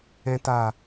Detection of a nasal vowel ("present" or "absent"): present